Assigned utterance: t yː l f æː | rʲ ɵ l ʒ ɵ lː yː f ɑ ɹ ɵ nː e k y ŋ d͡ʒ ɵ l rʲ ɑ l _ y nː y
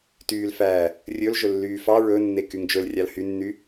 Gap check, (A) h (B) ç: A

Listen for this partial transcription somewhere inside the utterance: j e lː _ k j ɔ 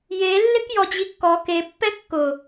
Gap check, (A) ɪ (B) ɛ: A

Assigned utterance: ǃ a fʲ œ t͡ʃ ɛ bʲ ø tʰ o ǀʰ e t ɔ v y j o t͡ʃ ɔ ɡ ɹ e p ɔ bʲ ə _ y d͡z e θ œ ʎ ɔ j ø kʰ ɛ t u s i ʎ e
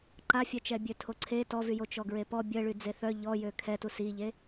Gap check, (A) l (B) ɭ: B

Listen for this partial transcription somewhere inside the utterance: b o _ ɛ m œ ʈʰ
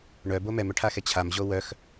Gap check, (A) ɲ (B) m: B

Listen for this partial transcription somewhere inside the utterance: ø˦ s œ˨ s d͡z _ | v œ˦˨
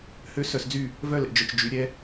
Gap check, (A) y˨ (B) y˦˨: B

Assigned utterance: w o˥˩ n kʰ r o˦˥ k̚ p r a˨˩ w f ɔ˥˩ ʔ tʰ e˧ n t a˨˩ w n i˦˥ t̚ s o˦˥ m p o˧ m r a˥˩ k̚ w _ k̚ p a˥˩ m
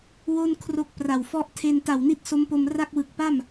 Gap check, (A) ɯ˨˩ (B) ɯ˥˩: A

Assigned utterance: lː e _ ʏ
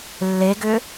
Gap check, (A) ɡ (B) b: A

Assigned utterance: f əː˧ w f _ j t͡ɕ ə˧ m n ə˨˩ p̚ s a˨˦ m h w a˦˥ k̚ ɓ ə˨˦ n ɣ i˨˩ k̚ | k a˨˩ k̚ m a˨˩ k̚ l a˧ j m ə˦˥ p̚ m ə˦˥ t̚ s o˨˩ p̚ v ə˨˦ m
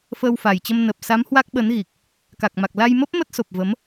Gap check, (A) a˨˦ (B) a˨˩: B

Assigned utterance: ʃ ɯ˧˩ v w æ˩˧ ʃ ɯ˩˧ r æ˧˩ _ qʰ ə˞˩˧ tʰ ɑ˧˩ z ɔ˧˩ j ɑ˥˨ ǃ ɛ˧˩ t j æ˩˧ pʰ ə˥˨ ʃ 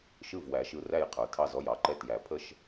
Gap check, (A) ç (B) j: B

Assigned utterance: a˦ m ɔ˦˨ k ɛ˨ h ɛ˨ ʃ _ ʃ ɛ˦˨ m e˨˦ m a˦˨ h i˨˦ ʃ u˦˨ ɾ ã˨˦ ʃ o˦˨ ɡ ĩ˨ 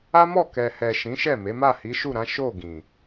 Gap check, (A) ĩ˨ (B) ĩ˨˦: B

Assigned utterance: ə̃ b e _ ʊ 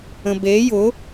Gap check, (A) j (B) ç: A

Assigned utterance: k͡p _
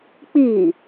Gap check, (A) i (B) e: A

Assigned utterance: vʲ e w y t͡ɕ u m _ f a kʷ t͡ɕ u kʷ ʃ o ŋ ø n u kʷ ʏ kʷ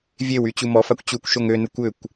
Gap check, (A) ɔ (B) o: A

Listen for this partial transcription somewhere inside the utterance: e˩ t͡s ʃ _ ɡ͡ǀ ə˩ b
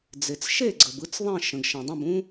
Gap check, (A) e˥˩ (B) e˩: A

